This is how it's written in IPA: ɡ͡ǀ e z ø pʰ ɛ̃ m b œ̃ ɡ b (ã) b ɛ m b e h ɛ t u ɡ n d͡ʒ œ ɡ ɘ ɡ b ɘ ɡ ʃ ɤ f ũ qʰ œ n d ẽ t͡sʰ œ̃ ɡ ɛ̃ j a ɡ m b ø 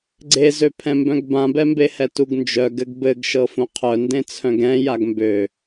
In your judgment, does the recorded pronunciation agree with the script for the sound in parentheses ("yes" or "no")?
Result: yes